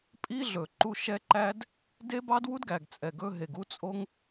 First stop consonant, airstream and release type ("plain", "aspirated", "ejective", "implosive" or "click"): ejective